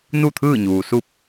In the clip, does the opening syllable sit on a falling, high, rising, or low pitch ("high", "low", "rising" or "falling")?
falling